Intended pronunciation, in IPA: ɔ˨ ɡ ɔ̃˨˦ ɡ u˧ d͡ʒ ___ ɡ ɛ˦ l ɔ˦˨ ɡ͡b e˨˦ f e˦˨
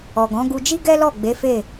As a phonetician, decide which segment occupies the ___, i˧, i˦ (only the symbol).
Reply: i˦